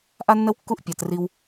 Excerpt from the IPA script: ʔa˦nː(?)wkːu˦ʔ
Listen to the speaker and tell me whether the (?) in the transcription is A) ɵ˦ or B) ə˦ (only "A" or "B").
B